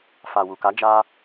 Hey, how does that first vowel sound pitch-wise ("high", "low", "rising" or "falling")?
low